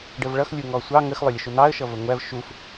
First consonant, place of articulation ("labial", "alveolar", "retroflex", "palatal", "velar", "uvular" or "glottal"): retroflex